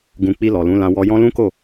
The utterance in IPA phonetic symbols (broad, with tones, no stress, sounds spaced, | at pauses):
ɡ ũ˧ k͡p i˧ l ɔ˨ l ũ˨˦ l ã˧ w ɔ˧ j ɔ̃˦ l ũ˦ k o˦˨